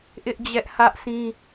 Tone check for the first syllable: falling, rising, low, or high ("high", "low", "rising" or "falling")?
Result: high